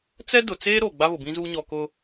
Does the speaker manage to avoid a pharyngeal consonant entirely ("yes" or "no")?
yes